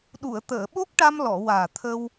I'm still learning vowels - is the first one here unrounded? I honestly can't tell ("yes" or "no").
no